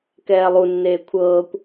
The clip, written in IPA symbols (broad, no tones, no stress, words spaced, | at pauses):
kɛːlˠunːeː kʷʰɤːkʷ